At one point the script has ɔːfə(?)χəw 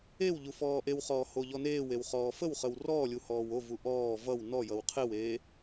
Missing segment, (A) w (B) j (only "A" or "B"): A